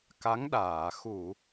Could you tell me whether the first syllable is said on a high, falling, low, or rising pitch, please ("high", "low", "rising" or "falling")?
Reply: rising